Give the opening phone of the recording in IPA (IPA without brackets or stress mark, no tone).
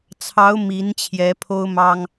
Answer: t͡sʰ